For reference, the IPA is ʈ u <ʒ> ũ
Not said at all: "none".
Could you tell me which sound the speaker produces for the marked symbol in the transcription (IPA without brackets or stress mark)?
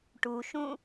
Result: ʃ